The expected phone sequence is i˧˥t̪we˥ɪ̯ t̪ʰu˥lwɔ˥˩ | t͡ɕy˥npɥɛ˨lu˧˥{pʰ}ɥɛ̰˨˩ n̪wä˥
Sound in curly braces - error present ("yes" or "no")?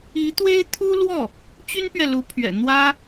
no